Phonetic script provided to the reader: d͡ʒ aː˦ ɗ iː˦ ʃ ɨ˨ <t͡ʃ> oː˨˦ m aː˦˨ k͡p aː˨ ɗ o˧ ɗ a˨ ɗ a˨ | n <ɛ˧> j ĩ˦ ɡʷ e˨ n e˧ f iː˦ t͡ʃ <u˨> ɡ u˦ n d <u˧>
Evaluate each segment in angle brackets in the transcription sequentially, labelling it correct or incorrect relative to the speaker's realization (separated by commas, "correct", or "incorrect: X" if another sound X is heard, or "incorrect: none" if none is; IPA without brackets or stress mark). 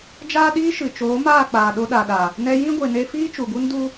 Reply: correct, correct, correct, incorrect: u˦